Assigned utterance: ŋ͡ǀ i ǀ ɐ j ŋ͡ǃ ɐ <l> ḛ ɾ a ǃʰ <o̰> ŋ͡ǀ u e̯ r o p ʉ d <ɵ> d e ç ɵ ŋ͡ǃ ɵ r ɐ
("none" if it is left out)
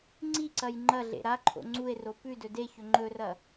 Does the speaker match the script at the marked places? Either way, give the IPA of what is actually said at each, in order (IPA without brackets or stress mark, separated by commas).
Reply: ɮ, o̰, ɵ